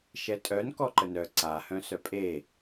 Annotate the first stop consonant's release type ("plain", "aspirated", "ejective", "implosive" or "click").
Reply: ejective